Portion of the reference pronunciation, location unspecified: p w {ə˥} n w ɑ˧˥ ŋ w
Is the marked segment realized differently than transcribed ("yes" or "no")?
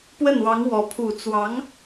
yes